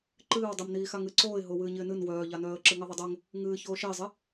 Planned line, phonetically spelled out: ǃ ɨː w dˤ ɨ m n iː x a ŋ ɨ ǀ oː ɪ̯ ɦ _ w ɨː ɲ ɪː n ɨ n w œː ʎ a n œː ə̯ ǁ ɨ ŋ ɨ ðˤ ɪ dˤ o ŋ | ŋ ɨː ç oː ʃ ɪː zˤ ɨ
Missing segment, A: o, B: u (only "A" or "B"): A